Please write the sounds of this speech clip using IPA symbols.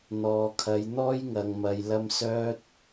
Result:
n̪ ɔː˨ kʰ ɐ˨˧ j n̪ ɔː˥ j ŋ ɐ˨ ŋ m ɐ˨ j l ɐ˧ m s œː˥ t̚

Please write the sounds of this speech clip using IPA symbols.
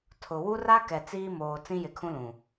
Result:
tʰ ʊ˨ w u˦ r a˦ k ɛ˨ t͡s iː˦ m oː˨ t͡s ĩ˦ j ɪ˨ kʰ ũ˦ l ũ˨

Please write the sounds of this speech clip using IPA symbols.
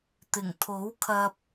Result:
t̪ ɪ˨˩ ŋ t̪ʰ o˨˥ w kʰ ɐ˧ p̚

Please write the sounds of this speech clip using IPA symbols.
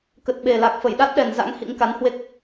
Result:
k ə˨˩ t̚ ɓ e˨˩ l a˨˩ k̚ f ə˧˩ j ɗ a˦˥ t̚ ɗ ɛ˨˩ n z a̰˧˥ ŋ h ḭ˧˥ ŋ k a˨˦ n h w e˦˥ k̚

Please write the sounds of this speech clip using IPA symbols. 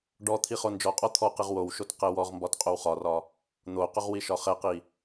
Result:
ɖ ɔ t̪ʰ i χ o n d͡ʒ ɔ qʼ ɔ t̪ʰ ɔ q i ʁ w o w ʃ o t q ɛ w ɔ ʁ m b ɒ t qʼ o w χ ɒ r ɒ | n̪ o q ʊ ʁ w i ʃ ɒ χ ɛ q i

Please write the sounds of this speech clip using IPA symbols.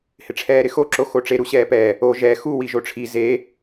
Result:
h ɪ ʈ͡ʂʰ ɛː ɾ ɪ x o ǁ o x o ʈ͡ʂ e ɾ u ɕ ɛː p ɛ | o ʒ ɛ x u w i ʒ o ʈ͡ʂʰ i z e

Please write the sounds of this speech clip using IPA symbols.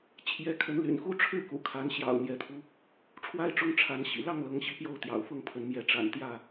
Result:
t͡ɕʰ j ɛ˨˦ kʰ ə˨˦ n l y̰˨˩ n x u˦ ʈ͡ʂʰ ɻ̩˥˨ k ṵ˨˩ kʰ a˨˦ n ɕ j ɑ̰˨˩ ʊ̯ n̪ j ɛ˨˦ t̪ʰ u˧ | ʈ͡ʂʰ w a˦ ɪ̯ ʈ͡ʂ ʊ˦ ŋ ʈ͡ʂʰ a˨˦ n ɕ ḭ˨˩ l ɑ˥˨ ŋ l ɤ˨˦ ŋ ɕ i˨˦ p j o˥˨ ʊ̯ t̪ j ɑ̰˨˩ ʊ̯ f ʊ˥˨ ŋ pʰ ə˨˦ n m j ɛ˨˦ ʈ͡ʂ a̰˨˩ n t̪ j ä˥˨

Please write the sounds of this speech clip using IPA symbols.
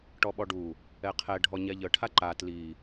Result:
ʈ ɔ ɓ ɔ ɖ u | ɛ qʰ ɛ ɖʱ ɔ ɲ ɛ ʎ ə ʈʰ a ǃ a t l i

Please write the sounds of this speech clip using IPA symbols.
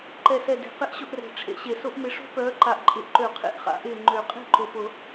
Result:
ǃ ɛ˨˩ s ɛ˨˩ d e̤˨˩˦ q ɪ˦˥ ʔ ɕ ʊ˥˧ ʔ r ɛ̤˨˩ ʈ͡ʂʰ ḛ˨˦ ɕ e˨˩ s ʊ˦˥ ʔ m ɪ˨˦ ʂ o̤˦˥ p œː˨˦ ǃ a˨˩ ʔ ǃʼ ɪ˨˩ ʔ ǃ ø˨˩˦ qʰ ḛ˨˩˦ ʔ χ a̰˨˩˦ ʔ ɪː˨˩ ŋ͡ǃ ø˨˩˦ qʼ e̤˥˧ ǃ ʊ˨˩ p ʊ˨˩˦

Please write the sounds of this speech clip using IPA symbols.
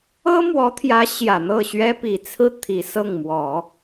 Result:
ɤ˥ m w ɔ˧˥ t̪ʰ j ä˧˥ ɕ j ä˨˩ n̪ ɤ˥˩ ɕ ɥ ɛ˥ p i˨˩ t͡sʰ ɹ̩˥˩ t̪ʰ i˨˩ s ɤ˥˩ ŋ m w ɔ˨˩˦

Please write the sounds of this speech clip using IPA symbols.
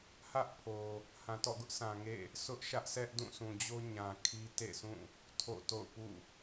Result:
h ä˦ ʔ pʰ o˨ | h ã˨ t ɔ̰˦˨ ɡ ʊ˦ ʔ s ã˨ ŋ ḛ˦˨ | sʰ ʊ˦ ʔ ʃ ä˦ ʔ s ɛ˦ ʔ d ũ˦˨ sʰ ũ˨ d͡ʑ o˦ ɲ ã˨ kʰ i˦ t ḛ˦˨ s ũ˦˨ | tʰ o̰˦˨ t o̰˦˨ ʊ̯ p ṵ˦˨

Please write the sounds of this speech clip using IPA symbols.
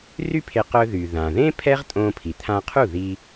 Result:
r y˥ pʰ e˧ q œ˧ ð y˩ ð ã˩ ð ẽ˥ pʰ ɛ˥ ʁ tʼ õ˧ pʰ i˩ t̪ʰ ã˧ qʰ u˥˩ ð i˧

